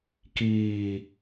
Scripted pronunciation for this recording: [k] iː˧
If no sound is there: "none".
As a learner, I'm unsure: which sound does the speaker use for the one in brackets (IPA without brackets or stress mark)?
k